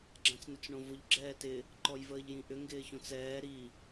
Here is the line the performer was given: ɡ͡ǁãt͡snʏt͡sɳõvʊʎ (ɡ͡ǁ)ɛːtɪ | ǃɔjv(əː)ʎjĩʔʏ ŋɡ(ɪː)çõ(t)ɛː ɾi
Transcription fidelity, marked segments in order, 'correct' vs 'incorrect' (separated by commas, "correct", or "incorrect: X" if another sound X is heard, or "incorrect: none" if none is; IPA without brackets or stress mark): correct, correct, correct, incorrect: t͡s